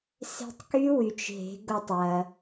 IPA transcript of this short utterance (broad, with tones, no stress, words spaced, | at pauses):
se̤˧tˤky˦˥wy˩t͡ʃ ɦe̤˩˧ ɡo˧tˤwɐ˩